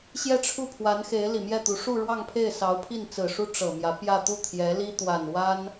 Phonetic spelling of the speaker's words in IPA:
ɕ j ɛ˥˧ ʈ͡ʂʰ u˥˩ pʰ w a˧˥ n x e˧˥ ɪ̯ l i˨˩ m j ɛ˥˩ t̪ u˧˥ ʂ u˥˧ ɻ w ɑ˥˧ ŋ pʰ e˥˩ ɪ̯ s ɑ˧˥ ʊ̯ pʰ i˥˩ n t͡s ɹ̩˨˩ ʂ u˥ ʈ͡ʂ ɤ˨˩ m j ä˧˥ p j ä˥˧ t̪ u˥˩ t̪ʰ j ɛ˧˥ l i˥ t̪ w a˨˩ n w a˥ n

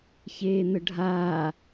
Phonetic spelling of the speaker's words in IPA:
ç eː n̪ ə ɖʱ aː

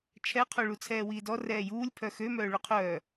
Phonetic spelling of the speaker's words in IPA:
t͡ʃʰ ɛ qʰ o ɭ u t͡sʰ ɛː w iː d ɔ r ɛː j uː lʲ pʰ œ x ø m œː ɭ u qʰ œː

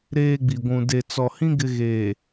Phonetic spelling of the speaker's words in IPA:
ɾ eː˦ ɡ͡b i˨ ɡʷ ũ˨ d e˨ t͡s ɔ˨ h ĩ˦ ɡ ɪ˦ ɣ eː˨

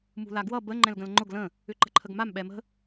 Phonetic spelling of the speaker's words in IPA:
m ṳ l a ɡ w ʌ b ə ŋ͡ǃ ɛ̃ l ɡ ə̃ l ŋ͡ǃ ʊ ɡ l ə̃ | ʏ ǃ ə̤ ǃʰ ə ɡ m a m ɓ ɛ m ə̤

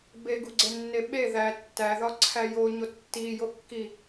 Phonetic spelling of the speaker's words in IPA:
b e ɡ u ɡ͡ǀ e nː e ɓ e ð æ tː æ ð ɒ ǀʰ æ j o ɲ o tː i j o kː i

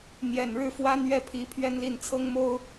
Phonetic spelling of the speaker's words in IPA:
n̪ j ɛ˨˩ n ɻ ɻ̩˥˩ f w a˥ n ɥ ɛ˥˩ pʰ i˧˥ pʰ ɥ ɛ˥ n l i˥˩ n t͡sʰ ɤ˥ ŋ m o˥ ʊ̯

